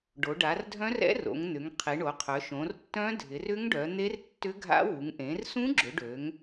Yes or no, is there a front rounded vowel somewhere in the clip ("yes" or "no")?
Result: yes